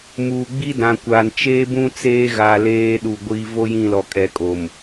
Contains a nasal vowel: yes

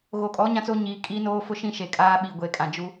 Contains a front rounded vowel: no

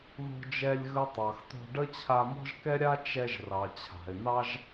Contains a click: no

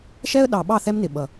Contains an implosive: yes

